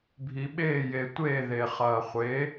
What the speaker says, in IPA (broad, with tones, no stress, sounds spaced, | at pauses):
bʱ i˩ ɓ eː˥˩ j e˩ tʷ eː˥˩ ð e˩ χ ɐː˩ χʷ e˩˥